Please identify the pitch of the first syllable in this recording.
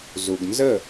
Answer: low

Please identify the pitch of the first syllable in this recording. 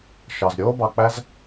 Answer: low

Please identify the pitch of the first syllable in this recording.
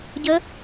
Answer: rising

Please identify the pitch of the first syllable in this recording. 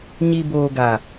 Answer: low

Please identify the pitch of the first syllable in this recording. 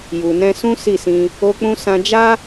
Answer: low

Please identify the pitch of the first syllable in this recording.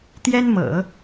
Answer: high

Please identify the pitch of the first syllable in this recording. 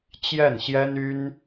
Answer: falling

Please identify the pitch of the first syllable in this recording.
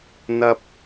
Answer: high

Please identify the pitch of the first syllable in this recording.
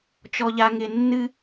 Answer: low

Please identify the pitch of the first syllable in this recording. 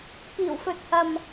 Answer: low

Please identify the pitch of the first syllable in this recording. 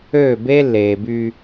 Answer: falling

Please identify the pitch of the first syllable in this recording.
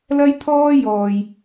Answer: high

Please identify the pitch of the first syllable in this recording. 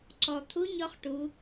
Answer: low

